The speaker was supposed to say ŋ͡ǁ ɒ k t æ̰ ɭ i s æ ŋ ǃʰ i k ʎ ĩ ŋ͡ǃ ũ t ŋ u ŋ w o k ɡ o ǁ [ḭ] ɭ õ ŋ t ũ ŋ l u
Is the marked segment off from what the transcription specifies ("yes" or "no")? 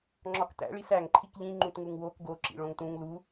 no